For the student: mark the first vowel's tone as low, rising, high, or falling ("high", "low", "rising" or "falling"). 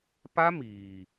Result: high